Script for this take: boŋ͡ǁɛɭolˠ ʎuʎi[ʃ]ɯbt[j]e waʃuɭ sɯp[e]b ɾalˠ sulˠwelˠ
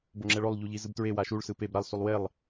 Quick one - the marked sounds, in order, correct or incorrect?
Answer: incorrect, incorrect, correct

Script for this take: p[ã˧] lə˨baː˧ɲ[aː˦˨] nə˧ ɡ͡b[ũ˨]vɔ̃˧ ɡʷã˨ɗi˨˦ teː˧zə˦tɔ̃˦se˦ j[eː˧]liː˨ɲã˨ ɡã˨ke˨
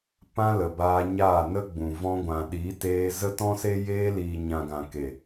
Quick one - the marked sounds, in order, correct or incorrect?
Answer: correct, correct, correct, correct

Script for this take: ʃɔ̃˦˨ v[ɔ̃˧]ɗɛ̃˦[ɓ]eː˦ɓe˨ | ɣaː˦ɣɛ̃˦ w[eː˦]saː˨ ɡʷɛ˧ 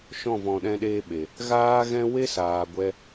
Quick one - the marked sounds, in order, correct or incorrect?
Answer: correct, incorrect, incorrect

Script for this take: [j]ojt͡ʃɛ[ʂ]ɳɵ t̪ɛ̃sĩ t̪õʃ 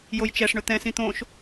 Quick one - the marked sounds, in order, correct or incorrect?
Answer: correct, correct

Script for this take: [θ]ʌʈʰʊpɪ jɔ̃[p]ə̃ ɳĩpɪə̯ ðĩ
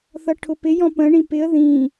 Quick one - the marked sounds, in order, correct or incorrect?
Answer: correct, correct

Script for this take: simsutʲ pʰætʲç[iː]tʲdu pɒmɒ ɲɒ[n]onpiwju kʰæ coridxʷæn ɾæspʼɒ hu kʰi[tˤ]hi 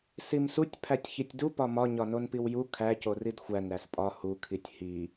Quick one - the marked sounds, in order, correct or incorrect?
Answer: incorrect, correct, incorrect

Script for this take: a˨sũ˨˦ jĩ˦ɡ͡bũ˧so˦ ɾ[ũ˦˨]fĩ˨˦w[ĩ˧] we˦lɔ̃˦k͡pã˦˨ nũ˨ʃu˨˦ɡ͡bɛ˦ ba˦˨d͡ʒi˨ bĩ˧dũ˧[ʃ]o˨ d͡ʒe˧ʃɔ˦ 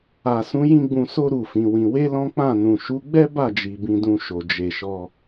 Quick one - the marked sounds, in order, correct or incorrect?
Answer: incorrect, correct, correct

